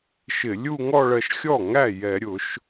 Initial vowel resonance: oral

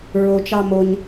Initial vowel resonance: oral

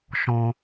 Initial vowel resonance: nasal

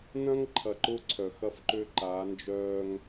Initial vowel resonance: nasal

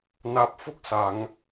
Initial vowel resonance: oral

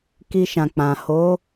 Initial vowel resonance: oral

